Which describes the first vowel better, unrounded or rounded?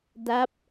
unrounded